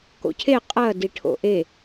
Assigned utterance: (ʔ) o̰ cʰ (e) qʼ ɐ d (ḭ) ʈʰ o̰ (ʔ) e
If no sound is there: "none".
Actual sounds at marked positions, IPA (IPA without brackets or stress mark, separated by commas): k, e, i, ʔ